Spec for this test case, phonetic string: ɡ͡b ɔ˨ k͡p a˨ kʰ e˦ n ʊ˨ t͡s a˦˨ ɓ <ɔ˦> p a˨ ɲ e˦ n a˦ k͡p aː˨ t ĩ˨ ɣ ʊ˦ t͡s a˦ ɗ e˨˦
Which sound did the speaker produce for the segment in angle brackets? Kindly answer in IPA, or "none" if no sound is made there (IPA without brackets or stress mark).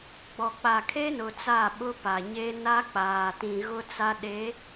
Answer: ʊ˦